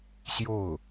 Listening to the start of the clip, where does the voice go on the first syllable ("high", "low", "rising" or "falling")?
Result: falling